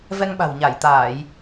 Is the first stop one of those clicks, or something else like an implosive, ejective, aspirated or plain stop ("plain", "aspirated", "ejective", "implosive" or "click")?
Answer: implosive